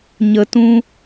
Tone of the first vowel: low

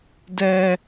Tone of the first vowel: high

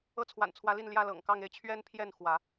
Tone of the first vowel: falling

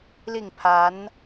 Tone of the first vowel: falling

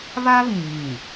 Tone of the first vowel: high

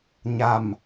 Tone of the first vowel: low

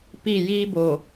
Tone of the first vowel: falling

